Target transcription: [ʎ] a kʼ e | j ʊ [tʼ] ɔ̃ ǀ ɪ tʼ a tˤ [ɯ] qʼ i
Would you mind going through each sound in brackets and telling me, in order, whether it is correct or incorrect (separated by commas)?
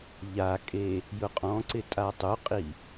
correct, incorrect, incorrect